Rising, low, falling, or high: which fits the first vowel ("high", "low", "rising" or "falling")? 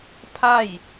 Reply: falling